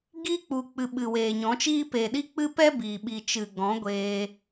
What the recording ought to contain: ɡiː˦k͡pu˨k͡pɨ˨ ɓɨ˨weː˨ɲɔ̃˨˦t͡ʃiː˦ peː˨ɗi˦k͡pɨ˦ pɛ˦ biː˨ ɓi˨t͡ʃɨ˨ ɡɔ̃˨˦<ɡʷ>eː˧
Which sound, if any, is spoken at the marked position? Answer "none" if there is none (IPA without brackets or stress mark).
ɡʷ